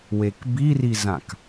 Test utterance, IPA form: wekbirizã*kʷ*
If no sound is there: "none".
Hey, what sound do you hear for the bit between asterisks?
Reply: k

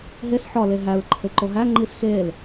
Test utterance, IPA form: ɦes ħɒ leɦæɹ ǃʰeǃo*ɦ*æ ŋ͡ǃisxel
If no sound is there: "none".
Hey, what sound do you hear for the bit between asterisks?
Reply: ɦ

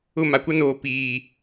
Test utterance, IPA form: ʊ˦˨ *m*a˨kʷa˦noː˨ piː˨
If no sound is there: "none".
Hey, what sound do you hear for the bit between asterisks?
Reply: m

